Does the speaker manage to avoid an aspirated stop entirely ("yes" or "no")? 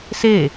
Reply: yes